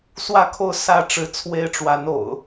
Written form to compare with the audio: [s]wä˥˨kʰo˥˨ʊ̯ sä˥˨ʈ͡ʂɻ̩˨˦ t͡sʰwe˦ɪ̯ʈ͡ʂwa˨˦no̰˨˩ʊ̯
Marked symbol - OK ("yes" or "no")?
yes